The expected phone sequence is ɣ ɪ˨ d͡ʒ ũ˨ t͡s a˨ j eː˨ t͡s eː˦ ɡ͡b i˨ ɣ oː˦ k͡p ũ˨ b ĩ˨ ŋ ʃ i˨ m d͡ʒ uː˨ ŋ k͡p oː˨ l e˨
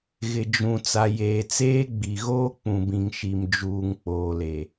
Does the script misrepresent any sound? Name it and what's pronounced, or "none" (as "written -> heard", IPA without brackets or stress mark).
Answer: none